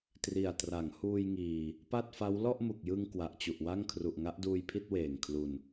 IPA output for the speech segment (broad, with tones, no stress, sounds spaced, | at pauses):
t r i˨˩ a̯ t r a˩˦ ŋ h uː˧ j ŋ iː˨˩ | p a˥˩ t̚ f a˦˥ w l ɔ˥˩ ʔ m u˨˩ k̚ j ɯ˧ ŋ k w a˨˩ ʔ t͡ɕ u˨˩ ʔ w a˥˩ ŋ kʰ r u˨˩ ʔ ŋ a˦˥ ʔ d uː˧ j pʰ i˥˩ t̚ w eː˨˩ ŋ kʰ l u˨˩ n